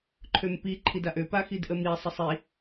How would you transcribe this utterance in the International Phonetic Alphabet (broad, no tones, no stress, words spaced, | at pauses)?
ǃʰømpi ǃʰidaʔø paxidʔəmi sˤəsˤi